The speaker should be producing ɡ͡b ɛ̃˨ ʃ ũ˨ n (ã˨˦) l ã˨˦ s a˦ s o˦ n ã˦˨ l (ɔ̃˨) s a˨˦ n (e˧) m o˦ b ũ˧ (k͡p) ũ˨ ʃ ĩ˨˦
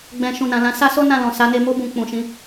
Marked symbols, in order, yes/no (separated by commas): no, yes, yes, yes